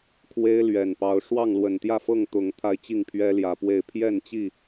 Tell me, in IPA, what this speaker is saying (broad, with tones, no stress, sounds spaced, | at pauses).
kʰ w e˦ ɪ̯ l ɥ ɛ˨˩ n p ɑ˨˦ ʊ̯ ʂ w ɑ˥˨ ŋ l w ə˨˩ n t̪ j ä˥˨ f ɤ˥˨ ŋ t̪ ʊ˨˦ ŋ t̪ʰ a˧ ɪ̯ t͡ɕ i˥˨ ŋ pʰ ɥ ɛ˦ l j ä˨˩ p w e˥˨ ɪ̯ pʰ j ɛ˥˨ n t͡ɕ i˥˨